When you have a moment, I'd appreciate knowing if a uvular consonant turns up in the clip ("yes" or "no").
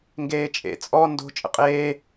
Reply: yes